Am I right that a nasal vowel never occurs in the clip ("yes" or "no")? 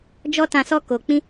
no